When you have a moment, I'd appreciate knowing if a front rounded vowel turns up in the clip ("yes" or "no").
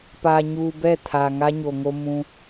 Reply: no